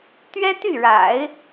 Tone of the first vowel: high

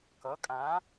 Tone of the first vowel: rising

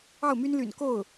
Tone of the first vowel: falling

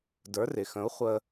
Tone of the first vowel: rising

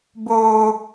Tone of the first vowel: low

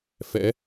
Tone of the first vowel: rising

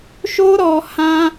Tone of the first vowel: high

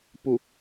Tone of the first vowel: low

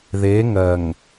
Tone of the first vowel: rising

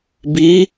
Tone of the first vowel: rising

